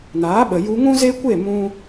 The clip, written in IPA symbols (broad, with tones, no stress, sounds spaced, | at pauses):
n aː˨˦ ɓ ə˨ j u˧ ŋ ũ˦ z e˦ kʷ e˦˨ m ũ˦